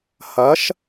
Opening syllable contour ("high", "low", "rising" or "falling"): rising